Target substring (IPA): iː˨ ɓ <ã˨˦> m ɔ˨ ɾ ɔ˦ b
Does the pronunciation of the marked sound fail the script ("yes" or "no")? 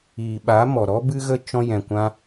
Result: yes